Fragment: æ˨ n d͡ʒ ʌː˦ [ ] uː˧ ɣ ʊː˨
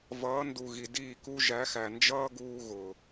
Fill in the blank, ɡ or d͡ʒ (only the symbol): ɡ